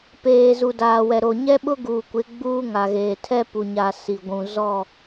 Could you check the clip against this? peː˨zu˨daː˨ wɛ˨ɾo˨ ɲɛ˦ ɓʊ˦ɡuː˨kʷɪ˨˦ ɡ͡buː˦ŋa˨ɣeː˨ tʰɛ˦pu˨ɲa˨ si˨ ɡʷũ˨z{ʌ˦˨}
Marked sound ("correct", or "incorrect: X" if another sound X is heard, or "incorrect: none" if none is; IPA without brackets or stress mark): incorrect: ɔ˦˨